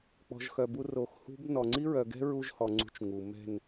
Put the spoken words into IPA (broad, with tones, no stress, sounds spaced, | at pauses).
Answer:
k͡p ɔ̤˨ ʒ x œ˨ b u˧ r o˨ x h ṳ˦ b n ɔ˨ ŋ͡ǀ i˦ ɹ œ˨ ɡ ɛ̤˦ ɹ u˦ ʒ h ɔ˨ ŋ͡ǀ ṳ˧ t͡ʃ ŋ u˨ m ɛ̤˦˨ n